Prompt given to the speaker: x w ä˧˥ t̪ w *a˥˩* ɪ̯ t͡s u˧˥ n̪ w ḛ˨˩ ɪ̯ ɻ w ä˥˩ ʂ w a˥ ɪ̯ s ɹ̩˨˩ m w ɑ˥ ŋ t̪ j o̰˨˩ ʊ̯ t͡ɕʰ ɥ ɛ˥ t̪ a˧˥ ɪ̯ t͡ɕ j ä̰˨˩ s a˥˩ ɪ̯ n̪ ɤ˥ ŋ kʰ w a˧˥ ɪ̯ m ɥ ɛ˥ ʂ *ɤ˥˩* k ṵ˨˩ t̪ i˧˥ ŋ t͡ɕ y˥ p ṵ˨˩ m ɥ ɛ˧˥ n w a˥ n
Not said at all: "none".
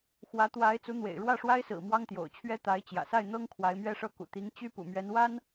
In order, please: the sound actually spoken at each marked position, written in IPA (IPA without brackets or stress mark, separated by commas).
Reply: a˧˥, ɤ˥˩